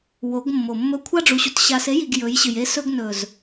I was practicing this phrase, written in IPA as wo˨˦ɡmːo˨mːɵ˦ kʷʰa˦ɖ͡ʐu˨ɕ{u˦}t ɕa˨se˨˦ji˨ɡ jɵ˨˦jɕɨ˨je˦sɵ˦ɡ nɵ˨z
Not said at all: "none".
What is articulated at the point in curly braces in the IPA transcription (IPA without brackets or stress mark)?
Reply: u˨